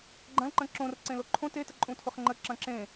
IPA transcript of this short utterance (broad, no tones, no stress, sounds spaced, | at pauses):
ɡ͡ǃ ɐ̃ l ǃ ə̃ ǁ õ r ǀ ẽ l o ǃʰ õ t e t ə ǃʼ ũ tʰ ʊ χ ŋ͡ǃ ə ǁ ɐ̃ ǁ ẽ